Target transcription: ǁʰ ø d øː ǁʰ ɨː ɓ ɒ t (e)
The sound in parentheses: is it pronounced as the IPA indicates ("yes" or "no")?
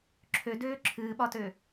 no